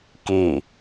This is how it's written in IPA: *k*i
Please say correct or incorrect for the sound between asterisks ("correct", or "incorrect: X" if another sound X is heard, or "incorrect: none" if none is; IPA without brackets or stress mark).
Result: correct